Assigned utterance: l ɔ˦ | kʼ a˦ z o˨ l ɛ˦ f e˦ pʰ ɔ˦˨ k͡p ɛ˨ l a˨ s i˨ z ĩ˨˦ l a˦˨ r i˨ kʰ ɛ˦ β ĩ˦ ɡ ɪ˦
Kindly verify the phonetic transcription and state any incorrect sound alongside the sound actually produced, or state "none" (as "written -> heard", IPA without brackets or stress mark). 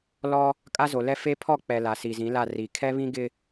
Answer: none